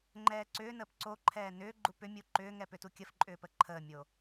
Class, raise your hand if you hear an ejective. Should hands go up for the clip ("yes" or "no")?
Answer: yes